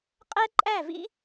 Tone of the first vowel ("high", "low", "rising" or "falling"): high